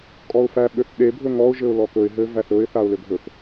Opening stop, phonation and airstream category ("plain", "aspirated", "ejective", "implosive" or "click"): ejective